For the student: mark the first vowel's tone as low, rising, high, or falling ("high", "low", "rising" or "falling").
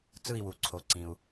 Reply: falling